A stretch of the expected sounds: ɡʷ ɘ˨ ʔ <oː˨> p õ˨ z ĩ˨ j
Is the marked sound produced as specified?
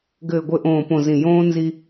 no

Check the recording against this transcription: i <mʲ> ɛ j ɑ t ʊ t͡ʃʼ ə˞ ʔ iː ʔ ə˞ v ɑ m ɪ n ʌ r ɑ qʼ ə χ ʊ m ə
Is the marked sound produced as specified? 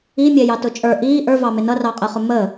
yes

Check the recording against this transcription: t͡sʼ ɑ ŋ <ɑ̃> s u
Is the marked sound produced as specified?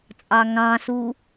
yes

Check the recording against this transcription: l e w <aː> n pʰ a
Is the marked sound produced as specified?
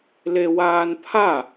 yes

